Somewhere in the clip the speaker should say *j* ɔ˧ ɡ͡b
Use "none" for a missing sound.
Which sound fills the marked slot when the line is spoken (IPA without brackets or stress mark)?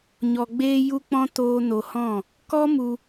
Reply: ɲ